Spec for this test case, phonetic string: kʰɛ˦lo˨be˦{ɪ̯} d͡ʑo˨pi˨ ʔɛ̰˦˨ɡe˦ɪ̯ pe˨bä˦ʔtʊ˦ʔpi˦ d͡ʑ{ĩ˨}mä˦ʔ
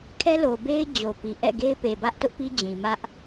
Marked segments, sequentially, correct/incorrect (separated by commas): correct, correct